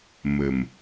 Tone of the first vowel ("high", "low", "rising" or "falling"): low